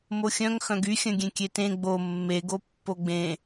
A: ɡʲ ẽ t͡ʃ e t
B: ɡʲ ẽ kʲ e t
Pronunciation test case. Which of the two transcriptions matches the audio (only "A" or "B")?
B